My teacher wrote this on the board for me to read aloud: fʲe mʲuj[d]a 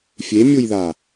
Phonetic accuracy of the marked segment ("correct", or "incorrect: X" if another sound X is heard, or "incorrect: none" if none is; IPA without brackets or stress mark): incorrect: ð